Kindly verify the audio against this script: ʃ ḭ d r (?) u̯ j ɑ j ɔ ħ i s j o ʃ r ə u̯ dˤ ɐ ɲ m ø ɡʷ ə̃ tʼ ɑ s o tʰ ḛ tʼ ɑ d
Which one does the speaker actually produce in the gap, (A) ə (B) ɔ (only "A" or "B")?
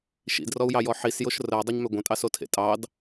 B